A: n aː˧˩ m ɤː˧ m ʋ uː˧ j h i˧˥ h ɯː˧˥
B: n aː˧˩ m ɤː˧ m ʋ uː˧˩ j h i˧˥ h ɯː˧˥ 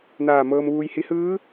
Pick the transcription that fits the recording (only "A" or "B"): A